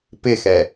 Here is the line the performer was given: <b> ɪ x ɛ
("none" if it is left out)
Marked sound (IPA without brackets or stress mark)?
p